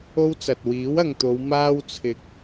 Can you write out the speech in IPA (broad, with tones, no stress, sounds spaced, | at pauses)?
o˥ w t͡s ɐ˨ t̚ w iː˨˥ w ɐ˨ ŋ t̪ o˨˧ w m aː˥ w t͡sʰ ɪ˨ k̚